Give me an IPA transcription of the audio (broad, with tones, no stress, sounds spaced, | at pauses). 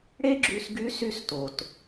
ɽ e˥ ɡ͡ǁ y˧ s ɡ y˧˥ s y˥ s t o˩ t